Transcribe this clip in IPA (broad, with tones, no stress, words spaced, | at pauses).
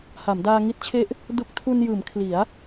ha˩˦mdaː˧ ŋi˦˥t̚t͡ɕʰe˦˥ʔ | du˦˥k̚ tʰu˧njɯː˩˦m kʰli˩˦a̯